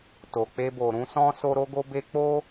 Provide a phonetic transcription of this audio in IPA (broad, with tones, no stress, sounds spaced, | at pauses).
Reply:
t o˨ k͡p e˧ b o˨ ɾ ũ˧ s ɔ̃˦ s o˦ ɾ o˦ ɡ o˦ b e˦ k͡p o˦